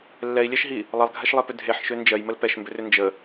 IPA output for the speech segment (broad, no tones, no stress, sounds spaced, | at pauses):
lː ɛ i̯ lʲ ɛ ʃ ɦ i | lˠ ʌ lˠ ɡʱ ɛ ʃ lˠ e p ʏ dʱ e ħ ʃ ø n d͡ʒ ɜ j m ə l p ɛ ʃ m b ʏ r ʏ n d͡ʒ ə